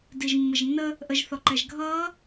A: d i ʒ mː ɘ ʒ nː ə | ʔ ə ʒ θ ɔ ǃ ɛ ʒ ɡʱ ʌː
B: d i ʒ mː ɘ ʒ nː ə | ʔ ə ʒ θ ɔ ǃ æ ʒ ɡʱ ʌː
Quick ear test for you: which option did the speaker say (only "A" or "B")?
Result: A